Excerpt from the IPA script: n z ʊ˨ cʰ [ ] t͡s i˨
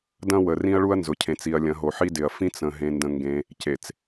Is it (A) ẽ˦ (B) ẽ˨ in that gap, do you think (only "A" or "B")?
B